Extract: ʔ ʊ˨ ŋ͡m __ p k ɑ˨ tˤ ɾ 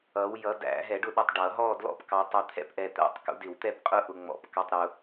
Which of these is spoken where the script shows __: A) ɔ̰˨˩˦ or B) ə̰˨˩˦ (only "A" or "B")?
A